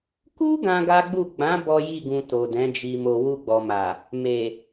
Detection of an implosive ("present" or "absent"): absent